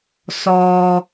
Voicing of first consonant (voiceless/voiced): voiceless